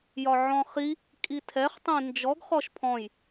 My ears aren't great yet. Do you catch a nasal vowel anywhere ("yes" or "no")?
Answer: yes